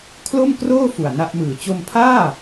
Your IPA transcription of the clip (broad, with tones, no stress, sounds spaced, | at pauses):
kʰ l o˥˩ m k r oː˥˩ f u˨˩ a̯ n a˥˩ ʔ m ɯː˨˩ t͡ɕ o˧ m pʰ aː˥˩